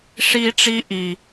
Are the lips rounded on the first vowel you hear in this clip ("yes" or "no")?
no